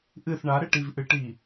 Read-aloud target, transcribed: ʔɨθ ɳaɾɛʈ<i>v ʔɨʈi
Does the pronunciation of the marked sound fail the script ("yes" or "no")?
no